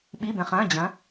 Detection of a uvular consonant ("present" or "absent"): present